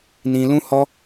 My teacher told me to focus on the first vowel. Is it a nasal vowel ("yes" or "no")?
yes